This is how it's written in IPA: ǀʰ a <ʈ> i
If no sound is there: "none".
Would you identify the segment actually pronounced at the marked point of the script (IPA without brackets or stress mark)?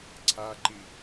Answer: ǃ